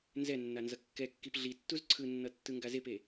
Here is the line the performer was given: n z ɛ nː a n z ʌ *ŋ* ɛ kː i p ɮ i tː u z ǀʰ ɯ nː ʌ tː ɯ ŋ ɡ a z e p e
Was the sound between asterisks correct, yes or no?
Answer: no